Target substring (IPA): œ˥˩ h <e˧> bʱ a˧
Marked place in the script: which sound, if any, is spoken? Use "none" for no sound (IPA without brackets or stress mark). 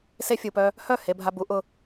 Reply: e˧